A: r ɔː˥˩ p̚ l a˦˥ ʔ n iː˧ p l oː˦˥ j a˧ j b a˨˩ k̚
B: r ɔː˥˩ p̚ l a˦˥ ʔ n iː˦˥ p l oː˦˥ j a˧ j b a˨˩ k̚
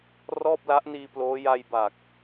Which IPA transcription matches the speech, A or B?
A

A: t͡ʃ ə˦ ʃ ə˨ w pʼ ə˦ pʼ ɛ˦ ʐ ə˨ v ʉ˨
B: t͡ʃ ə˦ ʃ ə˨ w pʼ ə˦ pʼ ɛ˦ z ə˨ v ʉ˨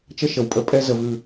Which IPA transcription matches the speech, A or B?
B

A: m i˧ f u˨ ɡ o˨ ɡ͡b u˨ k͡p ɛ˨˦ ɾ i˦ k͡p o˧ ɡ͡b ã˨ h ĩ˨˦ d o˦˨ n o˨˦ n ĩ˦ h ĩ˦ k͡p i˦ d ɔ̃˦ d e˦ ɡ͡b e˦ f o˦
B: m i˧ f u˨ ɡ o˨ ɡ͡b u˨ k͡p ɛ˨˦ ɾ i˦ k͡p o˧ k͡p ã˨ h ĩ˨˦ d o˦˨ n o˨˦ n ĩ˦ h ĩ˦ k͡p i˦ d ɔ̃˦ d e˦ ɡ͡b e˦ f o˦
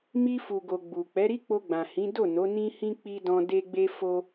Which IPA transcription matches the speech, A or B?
A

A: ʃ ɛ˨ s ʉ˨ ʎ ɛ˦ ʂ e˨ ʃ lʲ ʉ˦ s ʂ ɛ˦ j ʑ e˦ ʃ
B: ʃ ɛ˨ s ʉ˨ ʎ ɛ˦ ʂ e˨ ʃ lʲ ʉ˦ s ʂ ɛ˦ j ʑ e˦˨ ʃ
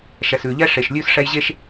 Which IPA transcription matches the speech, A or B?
A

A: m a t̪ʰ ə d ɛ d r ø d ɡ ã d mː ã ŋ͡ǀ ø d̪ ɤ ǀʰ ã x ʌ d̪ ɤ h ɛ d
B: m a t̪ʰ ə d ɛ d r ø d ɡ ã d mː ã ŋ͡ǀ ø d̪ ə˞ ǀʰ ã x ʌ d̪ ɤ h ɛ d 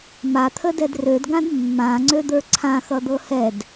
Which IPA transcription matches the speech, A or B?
B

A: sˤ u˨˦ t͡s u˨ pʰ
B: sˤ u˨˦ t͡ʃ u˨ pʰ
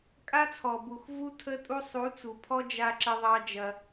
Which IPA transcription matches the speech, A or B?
A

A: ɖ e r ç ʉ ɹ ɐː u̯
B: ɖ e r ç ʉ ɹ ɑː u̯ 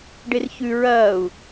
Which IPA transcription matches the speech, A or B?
A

